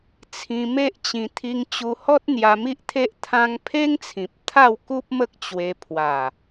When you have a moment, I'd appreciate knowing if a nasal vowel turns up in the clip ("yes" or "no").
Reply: yes